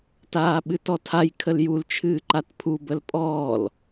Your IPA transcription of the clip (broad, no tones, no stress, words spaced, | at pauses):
taːɓɨtɔtʰaj kʰəljul t͡ʃʰɨːǃatpʰu bəlpʼɔːl